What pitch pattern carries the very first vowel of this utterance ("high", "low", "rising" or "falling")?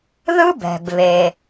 high